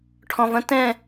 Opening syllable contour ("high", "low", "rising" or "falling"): low